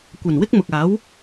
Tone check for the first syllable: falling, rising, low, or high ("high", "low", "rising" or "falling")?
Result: low